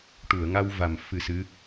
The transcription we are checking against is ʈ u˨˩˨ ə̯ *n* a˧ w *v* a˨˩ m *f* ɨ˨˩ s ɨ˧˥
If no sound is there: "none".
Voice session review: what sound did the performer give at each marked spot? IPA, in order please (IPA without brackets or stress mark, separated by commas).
ŋ, v, f